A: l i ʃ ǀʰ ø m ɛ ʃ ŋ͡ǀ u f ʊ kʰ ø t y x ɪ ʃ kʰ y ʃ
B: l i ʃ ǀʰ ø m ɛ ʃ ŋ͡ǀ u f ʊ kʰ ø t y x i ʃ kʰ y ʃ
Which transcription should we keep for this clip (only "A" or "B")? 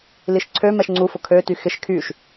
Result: A